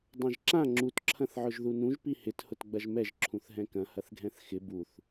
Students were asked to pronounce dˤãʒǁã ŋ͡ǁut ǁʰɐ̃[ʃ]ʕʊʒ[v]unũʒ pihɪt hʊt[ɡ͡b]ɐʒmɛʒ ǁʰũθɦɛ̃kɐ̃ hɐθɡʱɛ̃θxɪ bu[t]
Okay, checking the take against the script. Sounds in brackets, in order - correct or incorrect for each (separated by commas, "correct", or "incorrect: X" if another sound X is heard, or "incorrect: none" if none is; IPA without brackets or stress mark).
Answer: incorrect: θ, incorrect: ð, correct, incorrect: θ